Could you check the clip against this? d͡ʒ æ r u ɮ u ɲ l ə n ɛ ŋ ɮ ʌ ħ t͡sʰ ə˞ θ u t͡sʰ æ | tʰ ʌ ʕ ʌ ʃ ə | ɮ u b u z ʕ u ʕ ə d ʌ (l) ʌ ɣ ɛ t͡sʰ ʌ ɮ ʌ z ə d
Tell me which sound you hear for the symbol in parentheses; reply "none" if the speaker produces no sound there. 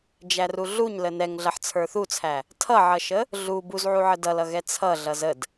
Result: l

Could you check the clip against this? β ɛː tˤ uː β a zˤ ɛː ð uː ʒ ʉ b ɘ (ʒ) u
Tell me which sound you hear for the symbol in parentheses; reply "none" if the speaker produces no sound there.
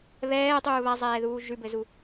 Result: z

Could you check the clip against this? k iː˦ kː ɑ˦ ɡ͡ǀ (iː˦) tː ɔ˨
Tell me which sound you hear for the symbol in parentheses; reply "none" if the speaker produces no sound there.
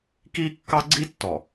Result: i˦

